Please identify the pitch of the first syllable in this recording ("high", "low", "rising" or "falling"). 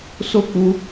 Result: high